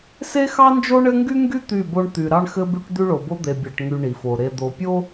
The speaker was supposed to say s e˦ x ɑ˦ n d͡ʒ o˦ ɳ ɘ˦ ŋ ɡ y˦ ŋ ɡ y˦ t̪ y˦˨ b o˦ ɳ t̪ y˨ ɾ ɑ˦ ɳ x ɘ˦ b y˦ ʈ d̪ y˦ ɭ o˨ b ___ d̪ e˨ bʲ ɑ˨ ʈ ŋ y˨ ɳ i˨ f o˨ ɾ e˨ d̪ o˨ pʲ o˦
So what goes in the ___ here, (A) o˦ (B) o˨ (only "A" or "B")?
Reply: A